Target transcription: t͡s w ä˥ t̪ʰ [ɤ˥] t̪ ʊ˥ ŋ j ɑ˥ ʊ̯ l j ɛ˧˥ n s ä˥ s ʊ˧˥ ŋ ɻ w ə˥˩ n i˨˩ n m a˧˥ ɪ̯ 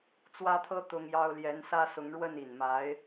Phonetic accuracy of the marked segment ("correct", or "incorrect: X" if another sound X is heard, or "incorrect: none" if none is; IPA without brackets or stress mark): correct